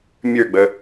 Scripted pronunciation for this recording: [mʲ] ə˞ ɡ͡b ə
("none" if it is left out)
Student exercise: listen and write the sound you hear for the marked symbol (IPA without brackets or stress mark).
mʲ